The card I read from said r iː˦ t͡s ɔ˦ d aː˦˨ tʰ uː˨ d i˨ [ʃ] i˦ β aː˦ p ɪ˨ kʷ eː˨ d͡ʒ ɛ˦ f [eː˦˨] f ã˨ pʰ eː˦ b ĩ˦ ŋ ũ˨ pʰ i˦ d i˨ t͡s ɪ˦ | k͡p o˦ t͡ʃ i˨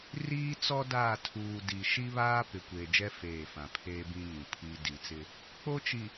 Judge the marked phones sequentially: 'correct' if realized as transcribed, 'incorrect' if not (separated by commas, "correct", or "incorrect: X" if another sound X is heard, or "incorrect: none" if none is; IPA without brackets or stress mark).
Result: correct, correct